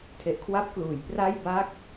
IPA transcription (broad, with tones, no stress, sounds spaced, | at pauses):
tʰ e˨˩ ʔ kʰ w a˦˥ p̚ k l uː˩˦ j p r a˥˩ j b a˥˩ k̚